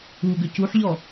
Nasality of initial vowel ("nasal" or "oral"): oral